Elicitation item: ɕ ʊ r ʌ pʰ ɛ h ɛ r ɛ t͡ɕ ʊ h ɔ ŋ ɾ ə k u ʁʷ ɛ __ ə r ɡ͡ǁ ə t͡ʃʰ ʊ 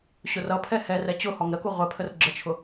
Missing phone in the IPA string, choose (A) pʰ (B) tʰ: A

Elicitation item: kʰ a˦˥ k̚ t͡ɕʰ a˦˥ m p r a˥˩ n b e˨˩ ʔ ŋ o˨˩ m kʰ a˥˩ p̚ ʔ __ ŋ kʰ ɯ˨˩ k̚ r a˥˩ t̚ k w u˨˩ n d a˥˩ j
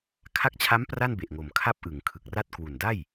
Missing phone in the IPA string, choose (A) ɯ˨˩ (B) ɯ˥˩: A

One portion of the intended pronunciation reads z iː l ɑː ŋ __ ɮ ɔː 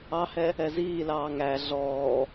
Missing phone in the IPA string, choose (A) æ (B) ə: A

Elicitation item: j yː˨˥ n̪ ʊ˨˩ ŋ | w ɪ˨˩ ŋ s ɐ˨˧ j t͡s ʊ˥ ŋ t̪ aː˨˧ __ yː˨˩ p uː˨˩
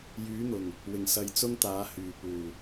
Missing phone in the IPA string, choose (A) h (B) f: A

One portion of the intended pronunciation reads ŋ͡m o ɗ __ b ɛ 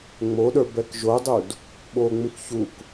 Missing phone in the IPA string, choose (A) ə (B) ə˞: B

